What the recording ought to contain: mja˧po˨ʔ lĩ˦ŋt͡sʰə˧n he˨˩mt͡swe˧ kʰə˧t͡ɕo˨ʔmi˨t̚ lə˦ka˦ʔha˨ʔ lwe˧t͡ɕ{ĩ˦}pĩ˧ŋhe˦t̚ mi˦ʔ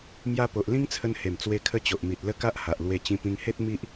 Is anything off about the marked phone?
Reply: yes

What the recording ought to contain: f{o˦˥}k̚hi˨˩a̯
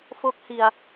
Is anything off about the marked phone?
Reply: no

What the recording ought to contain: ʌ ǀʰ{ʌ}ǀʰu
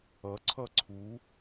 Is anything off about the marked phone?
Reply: no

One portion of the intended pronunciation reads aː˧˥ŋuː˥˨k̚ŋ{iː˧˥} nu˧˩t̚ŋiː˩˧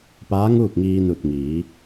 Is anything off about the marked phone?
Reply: yes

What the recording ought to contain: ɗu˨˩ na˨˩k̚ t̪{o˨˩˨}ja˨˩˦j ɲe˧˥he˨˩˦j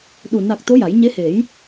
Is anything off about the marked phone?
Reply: yes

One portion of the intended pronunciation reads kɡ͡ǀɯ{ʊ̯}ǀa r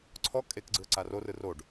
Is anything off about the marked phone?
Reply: yes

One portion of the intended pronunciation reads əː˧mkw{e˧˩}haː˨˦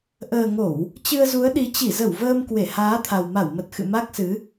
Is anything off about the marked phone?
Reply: no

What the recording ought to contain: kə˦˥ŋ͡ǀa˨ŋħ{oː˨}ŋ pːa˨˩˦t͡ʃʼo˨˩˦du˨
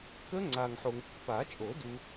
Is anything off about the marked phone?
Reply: yes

